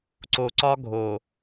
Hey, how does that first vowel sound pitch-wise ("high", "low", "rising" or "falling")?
low